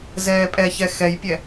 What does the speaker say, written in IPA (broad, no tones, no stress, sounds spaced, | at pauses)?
z ɛː pʼ ɛ ç ɛ x ɛ j pʲ ɛ